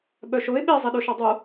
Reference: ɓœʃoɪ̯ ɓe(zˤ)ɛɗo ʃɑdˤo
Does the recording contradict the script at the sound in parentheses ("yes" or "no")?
no